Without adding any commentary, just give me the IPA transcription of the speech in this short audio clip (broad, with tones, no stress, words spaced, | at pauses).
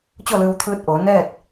t͡ɕo˥˨lɯː˧wt̪ʰɯː˧t̚ʔoː˩˧ nɛː˥˨t̚